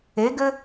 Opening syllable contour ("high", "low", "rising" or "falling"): rising